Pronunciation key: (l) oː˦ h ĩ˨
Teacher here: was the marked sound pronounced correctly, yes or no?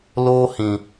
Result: yes